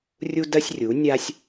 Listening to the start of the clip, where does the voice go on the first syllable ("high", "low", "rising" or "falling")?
high